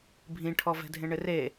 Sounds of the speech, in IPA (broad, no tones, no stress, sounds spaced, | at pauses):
bʱ ĩ ʈʰ ɔ v ɛ̤ dʱ ẽ ɳ ɪ r e